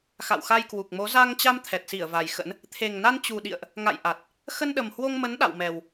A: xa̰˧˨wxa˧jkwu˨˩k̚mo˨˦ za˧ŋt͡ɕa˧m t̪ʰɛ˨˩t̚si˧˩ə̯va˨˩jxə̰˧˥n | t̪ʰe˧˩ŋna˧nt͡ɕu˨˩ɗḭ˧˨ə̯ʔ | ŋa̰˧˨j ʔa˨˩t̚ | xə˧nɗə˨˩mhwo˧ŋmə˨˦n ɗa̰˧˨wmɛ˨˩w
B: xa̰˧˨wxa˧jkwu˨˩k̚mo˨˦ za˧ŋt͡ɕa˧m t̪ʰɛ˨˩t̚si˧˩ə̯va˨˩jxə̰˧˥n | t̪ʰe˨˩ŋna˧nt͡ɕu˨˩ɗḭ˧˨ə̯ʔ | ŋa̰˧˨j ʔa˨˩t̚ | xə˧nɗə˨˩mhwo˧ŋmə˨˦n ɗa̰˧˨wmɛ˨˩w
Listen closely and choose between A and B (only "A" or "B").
B